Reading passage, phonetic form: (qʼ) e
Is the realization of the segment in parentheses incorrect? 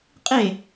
no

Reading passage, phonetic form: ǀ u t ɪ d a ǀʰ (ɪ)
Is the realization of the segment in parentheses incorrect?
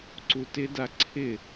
no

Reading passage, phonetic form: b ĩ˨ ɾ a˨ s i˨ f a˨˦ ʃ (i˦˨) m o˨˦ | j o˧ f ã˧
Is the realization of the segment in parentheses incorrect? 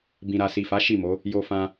no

